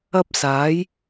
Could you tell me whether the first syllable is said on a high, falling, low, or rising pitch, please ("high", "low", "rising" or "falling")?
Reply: high